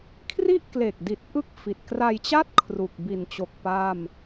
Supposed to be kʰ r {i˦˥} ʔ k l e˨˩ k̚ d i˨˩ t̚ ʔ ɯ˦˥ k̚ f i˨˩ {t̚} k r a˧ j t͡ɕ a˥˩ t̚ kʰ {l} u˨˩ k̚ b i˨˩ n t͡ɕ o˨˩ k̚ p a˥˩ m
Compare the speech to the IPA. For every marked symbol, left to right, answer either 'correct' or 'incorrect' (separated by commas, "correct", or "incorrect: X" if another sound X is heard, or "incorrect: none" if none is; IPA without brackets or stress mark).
incorrect: i˥˩, correct, incorrect: r